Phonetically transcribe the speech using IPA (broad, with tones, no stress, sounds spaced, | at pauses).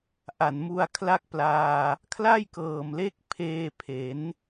ʔ a˨˩ n m u˧ a̯ kʰ l a˥˩ k̚ p l aː˧ | kʰ l a˥˩ j k ɤː˨˩ m l e˦˥ k̚ pʰ eː˧ pʰ e˩˦ n